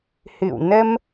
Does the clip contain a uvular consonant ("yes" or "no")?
no